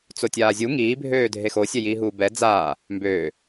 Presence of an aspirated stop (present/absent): absent